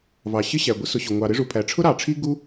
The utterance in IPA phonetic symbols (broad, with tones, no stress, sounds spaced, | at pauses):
v ɑ˩ ɕ ɪ˥ ɕ æ˩ ɡʷ ɪ˥ s ʊ˩ ɕ ʊ˩ ŋʷ ɑ˩ ɾ ɪ˥ ʐ u˩ pʰ æ˩ ʈ͡ʂʰ ʊ˥ ɾ ɑ˩ ʈ͡ʂʰ i˥ ɡ u˥